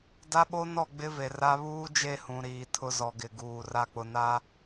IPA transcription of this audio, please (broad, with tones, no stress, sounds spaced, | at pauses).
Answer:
d a˦ ɓ o˦ n ɔ˦˨ ɡ͡b ɪ˦ v e˨ r a˦ β uː˦ d͡ʒ e˦˨ h ũ˨ ɾ iː˨ tʰ ʊ˦ z ɔ˨ ɡ ɪ˨ ɡ uː˨ r a˦ k͡p ʊ˨ n a˦